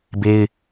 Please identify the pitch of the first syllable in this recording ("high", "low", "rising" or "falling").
high